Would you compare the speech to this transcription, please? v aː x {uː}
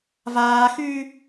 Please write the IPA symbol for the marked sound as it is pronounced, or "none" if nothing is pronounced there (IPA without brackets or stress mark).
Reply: yː